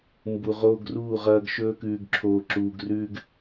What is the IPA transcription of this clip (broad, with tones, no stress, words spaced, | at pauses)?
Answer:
mbu˨ʁoː˦ɡruː˦˨ʁɐː˦ɡ ʃɵː˦kʉː˨ɡǁʰoː˨ǁuː˨ɡ rʉː˦ɡ